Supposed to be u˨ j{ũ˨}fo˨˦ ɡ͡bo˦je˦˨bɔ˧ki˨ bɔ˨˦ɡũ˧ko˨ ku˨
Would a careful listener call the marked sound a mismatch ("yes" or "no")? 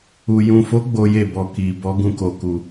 no